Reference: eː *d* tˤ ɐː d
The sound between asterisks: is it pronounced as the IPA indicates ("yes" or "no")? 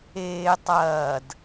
no